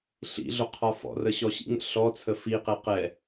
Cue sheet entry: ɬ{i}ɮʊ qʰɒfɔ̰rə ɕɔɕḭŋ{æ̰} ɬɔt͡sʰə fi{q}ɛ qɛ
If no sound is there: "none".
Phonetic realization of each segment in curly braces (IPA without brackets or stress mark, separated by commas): ḭ, ə̰, q